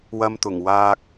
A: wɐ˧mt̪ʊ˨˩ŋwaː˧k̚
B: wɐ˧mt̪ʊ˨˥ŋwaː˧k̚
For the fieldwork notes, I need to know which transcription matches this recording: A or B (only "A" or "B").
A